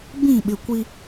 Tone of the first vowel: falling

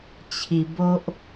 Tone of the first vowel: low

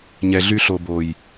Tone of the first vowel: low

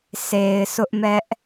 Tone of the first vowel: low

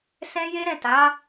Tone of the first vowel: high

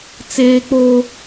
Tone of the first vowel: high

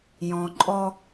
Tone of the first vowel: low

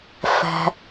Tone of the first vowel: low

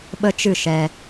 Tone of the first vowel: high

